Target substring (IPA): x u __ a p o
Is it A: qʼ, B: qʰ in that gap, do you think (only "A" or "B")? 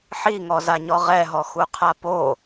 B